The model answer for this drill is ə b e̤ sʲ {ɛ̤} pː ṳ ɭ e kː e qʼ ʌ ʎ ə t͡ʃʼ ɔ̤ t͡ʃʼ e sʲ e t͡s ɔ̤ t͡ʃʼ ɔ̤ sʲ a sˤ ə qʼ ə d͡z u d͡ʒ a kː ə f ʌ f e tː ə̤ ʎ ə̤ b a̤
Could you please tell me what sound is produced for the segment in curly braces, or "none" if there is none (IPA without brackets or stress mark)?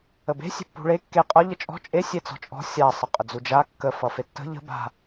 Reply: e̤